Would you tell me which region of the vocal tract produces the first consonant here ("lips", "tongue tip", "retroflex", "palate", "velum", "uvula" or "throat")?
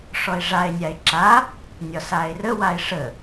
retroflex